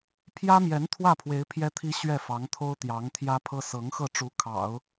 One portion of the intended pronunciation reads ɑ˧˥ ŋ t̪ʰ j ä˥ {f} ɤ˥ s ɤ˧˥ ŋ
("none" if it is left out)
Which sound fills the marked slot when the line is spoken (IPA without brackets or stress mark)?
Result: pʰ